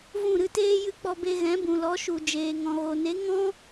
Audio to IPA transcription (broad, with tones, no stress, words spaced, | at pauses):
vũ˦˨ɾɨ˧teː˦ jɨ˦k͡pɔ˧ be˧ɣɛ̃˨˦bũ˨lɔ˨˦ ʃu˨ d͡ʒeː˨ŋɔ̃˨ɣo˨ne˨˦ ŋɔ̃˦